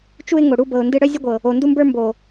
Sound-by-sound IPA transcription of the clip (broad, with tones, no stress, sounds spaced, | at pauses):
t͡ʃ u˦ ɪ̯ ŋ o˨ ɽ u˦ b ɤ˨ ʊ̯ n d ɨ˦ ɽ œ˦ zʲ ɤ˦ ɡʷ ɤ˨ | o˨ n d u˦ m b ə˞˦ m b o˨